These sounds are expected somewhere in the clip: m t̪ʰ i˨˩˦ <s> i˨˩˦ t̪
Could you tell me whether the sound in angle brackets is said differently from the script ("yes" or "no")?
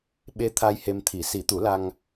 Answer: no